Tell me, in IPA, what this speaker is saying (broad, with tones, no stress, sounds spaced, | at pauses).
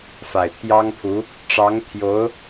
f a˨˩ ɪ̯ t̪ʰ j ɑ˥ ŋ pʰ u˧˥ | ʈ͡ʂ ɑ˧˥ ŋ t̪ʰ j o˧˥ ʊ̯